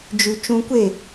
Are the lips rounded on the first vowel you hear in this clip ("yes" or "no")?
yes